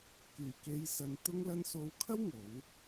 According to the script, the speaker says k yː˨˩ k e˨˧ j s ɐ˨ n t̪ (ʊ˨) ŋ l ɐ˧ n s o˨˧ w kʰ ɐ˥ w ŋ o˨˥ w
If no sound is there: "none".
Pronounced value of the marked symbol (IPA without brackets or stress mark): ʊ˧